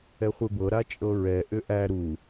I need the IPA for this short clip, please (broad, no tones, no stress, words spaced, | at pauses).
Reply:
ɛχʷebɤ ɾat͡ʃʼɤɹɛ ʔʏʔæ ɾu